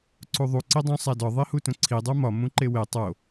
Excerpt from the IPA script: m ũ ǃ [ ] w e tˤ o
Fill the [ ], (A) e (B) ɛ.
A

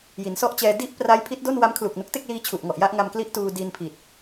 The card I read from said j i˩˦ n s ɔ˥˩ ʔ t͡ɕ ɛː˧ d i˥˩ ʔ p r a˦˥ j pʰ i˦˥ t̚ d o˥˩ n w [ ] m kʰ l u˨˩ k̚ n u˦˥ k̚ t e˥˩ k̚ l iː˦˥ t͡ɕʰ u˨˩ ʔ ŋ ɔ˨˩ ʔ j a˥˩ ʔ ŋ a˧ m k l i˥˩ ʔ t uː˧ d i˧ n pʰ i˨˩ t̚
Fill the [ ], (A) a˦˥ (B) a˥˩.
A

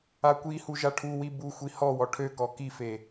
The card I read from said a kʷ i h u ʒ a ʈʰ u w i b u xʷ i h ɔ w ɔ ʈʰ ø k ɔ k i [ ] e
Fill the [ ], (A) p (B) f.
B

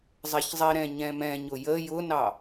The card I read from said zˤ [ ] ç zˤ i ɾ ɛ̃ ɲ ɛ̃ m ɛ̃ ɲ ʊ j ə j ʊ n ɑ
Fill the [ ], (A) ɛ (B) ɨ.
A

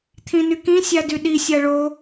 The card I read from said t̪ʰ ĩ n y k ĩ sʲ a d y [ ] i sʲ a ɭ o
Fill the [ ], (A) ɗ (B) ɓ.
A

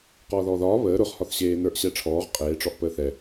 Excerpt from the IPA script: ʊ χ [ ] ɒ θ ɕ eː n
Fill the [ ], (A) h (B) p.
A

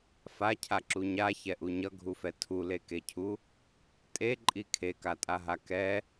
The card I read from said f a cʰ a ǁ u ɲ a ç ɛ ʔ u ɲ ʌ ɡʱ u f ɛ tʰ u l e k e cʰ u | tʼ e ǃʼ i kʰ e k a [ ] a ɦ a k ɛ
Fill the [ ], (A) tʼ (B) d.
A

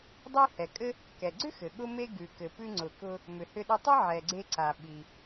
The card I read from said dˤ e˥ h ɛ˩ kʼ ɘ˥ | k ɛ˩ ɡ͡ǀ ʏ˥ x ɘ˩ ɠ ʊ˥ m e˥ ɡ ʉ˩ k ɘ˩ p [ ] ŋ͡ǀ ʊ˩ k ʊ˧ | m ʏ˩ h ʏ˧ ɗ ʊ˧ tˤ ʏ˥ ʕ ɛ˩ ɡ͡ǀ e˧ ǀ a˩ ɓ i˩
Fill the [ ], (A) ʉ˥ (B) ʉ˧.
B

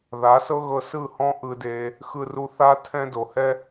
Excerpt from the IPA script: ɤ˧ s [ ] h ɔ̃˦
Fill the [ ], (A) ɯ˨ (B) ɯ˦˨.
B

